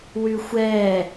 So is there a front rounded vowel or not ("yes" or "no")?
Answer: yes